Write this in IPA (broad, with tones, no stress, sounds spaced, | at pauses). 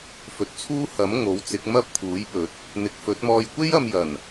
f ɵ˨ t̚ t͡sʰ uː˥ h ɐ˨˥ m ŋ o˨˥ w t͡s ɪ˨˥ k̚ m ɐ˥ p̚ t̪ʰ uː˨˥ j p ɵ˨˥ t̚ | n̪ ɪ˨˥ k̚ f ɵ˨˥ t̚ m ɔː˧ j kʷ e˥ j ɐ˧ m j ɐ˨˩ n